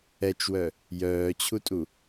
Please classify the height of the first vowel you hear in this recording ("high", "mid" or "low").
mid